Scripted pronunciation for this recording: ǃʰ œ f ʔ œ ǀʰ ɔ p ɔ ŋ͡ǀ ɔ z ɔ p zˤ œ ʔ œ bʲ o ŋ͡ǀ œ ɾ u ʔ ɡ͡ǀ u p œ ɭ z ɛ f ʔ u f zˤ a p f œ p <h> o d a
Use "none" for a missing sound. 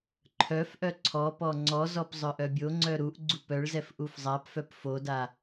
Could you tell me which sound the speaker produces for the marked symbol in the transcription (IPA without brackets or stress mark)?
f